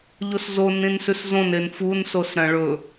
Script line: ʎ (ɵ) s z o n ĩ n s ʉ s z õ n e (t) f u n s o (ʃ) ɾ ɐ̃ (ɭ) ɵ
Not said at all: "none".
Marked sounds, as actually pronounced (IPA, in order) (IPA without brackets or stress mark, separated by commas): o, n, s, ɭ